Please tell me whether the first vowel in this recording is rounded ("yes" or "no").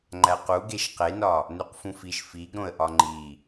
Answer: no